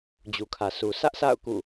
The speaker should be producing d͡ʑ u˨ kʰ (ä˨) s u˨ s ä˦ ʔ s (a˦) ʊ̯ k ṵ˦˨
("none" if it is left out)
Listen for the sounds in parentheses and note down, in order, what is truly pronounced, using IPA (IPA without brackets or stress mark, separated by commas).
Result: ä˨, a̰˦˨